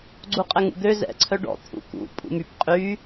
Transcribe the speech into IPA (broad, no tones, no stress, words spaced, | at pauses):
ɡ͡ǀuqʼɛŋṵd̪ø zɛ̰ ǀʰœɖɔ̰ t̪ʰṵkṵ pʼṵmyp qʼy